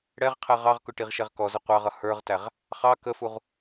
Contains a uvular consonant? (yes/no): yes